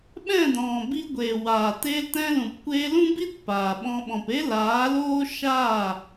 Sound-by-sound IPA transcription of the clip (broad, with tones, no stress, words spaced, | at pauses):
ɓɛ̃˦˨dɔ̃˨bi˧ɡʷeː˨ waː˨teː˧ltɛ̃˧lũ˨p kʷeː˧lũ˦bi˦t paː˨ɓɔ̃˧ ɓɔ̃˨pe˦laː˨˦ loː˦ʃa˦˨